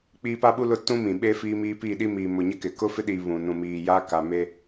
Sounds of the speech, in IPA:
k͡p i˦ p a˦ ɓ u˦ l ʊ˦ t ũ˦ m ĩ˨ ɓ e˦ f iː˦ m iː˦ p iː˦˨ ɗ i˦ m iː˨ m ʊ˨ ɲ ɪ˦ k ɪ˨ k ʊ˦ f ɪ˦ ɗ i˨ β ũ˨ n ũ˨ m iː˨ j a˦ k a˨ m e˦

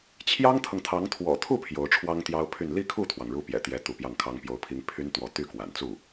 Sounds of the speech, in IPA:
t͡ɕʰ j ɑ˥ ŋ t̪ʰ ɤ˨ ŋ t̪ʰ ɑ˧˥ ŋ t̪ʰ w ɔ̰˨˩ t̪ʰ u˥˩ pʰ j o˧˥ ʊ̯ ʈ͡ʂʰ w ɑ˥ ŋ t̪ j ɑ˥ ʊ̯ pʰ y˥˧ n l i˥˧ kʰ u˥˩ t̪ʰ w ɑ˩ ŋ ɻ u˧˥ p j ɛ̰˨˩ t̪ j ɛ˧˥ t̪ u˧˥ p j ɑ˥˩ ŋ kʰ ɑ˥ ŋ p j o˧˥ ʊ̯ pʰ i˧˥ ŋ pʰ y˥ n t̪ w ɔ˧˥ t̪ y˥˩ k w a̰˨˩ n t͡s u˥˩

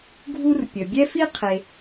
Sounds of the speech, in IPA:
ɡʱ u˥ r pʲ ə˨ bʲ ɛ˥ f i˥ qʰ e˨

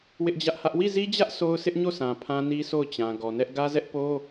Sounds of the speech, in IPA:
w ɪ˦ ʔ d͡ʑ ä˦ ʔ h ä˦ ʔ w i˦˨ z i˦ d͡ʑ ä˦ ʔ sʰ o˦ ʊ̯ sʰ ɪ˦ ʔ ɲ o˦˨ sʰ ã˨ pʰ ã˦ n i˦ s o˦˨ ʊ̯ t͡ɕ ã˨ ɡ ɔ˨ n ɛ˦ ʔ ɡ ä˦ z ɛ˦ ʔ p o˦

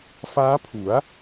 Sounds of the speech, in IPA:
f aː˦˥ pʰ u˩˦ a̯

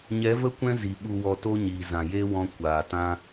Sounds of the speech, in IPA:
ɲ ɛ˨˦ v ə˦ kʷ ɛ̃˦ z i˨ ɓ u˨ w ɔ˨ t o˦ ɲ iː˨ z ã˨ j e˦ w ɔ̃˧ kʷ aː˨ t ã˦

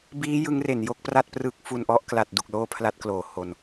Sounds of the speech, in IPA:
b iː˦˥ j ɯ˦˥ ŋ r e˩˦ n j o˥˩ k̚ p r a˥˩ t̚ p r ɯ˦˥ k̚ f u˧ n ʔ ɔ˥˩ ʔ k l a˨˩ t̚ d u˨˩ k̚ l oː˥˩ pʰ l a˥˩ t̚ k l oː˨˩ h o˧ n

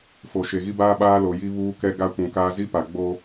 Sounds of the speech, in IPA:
f o˨ ʃ e˨ ɣ i˦ b aː˦ ɓ aː˦ l o˨ j i˦ β uː˦ k ɛ˦ ɡ a˦ kʷ ũ˨ k aː˦ z i˦ p a˨ ɡ͡b o˦

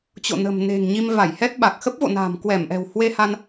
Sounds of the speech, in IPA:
t͡ɕ o̰˧˨ n ə̤˨˩ m n e̤˨˩ ŋ ɲ i˧ m v a˧˩ j h ɛ˦˥ t̚ ɓ a˨˩ k̚ x ə˦˥ p̚ v o̰˧˨ n a̤ː˨˩ m k w ɛ˧˩ m ʔ ɛ̤˨˩ w h w e˧ h a˧ n

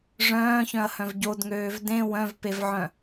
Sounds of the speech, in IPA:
ʐ œ̃ː ç œ̃ ɐ̯ h œ̃ v ɟ o d ŋ øː v d ẽ w œ̃ v p e v ʕ œ̃

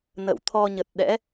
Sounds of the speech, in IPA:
n ə̰˧˨ w t̪ʰ ɔ˧ ɲ ə˨˩ t̚ ɗ ɛ̰˧˥

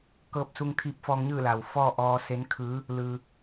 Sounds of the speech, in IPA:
k ɤː˧ p̚ s u˧ ŋ t̪ʰ iː˧ p̚ f ɔː˧ ŋ ɲ ɯː˥˨ l a˩ w f ɔː˥˨ ʔ ɔː˧ s e˧˥ n kʰ ɯː˧˥ | l ɯː˧

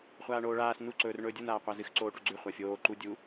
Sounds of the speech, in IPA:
χʷ aː ɳ oː ɭ aː s n u ǀ ɵː r ɳ ɵː dʲ u n aː qʷ a z ɨ x ǀ oː ʈ u ɡ͡ǀ ʉ χʷ a fʲ oː ǃ u dʲ u

